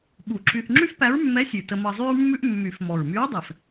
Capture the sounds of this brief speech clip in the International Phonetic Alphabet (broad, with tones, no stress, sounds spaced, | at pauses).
ɓ u˨˩˦ ǁ y˧ θ ŋ͡ǁ y˥ f p æ˧˥ ɹ mː ɛ˧˥ sʲ ʉ˨˩ t ə˧ m ɤ˧ zˤ y˥ ɹ mː ʉ˥ ʔ mː y˨˩˦ f m ɔ˨˩ ɹ m y˧˥ ɹ dˤ ɛ˨˩ f